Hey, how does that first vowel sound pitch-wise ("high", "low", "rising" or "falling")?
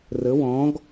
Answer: rising